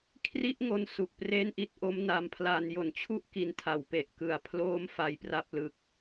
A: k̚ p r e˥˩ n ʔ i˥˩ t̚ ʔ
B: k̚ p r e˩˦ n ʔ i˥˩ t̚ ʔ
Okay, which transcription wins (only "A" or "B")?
A